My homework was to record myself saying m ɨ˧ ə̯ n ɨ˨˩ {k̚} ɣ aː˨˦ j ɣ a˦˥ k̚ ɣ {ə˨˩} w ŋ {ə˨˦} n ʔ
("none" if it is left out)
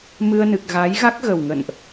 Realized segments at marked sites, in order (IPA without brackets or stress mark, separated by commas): k̚, ə˨˩, ə̰˧˨